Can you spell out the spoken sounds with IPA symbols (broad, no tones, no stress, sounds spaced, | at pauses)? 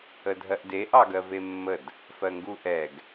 ə dʱ ɜ ʔ d e ʔ ɑ ɡ ɜ v e mː ə d | f ɜ ŋ ɡ u ʔ ɛ ɡ